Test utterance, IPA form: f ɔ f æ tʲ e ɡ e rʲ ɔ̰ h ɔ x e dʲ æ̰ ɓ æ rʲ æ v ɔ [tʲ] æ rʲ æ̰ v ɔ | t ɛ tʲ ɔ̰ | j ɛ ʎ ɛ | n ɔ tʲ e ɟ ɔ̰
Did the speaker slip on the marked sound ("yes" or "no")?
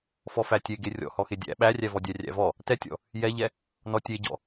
yes